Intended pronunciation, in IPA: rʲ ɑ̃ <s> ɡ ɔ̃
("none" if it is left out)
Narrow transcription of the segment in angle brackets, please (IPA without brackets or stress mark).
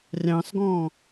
s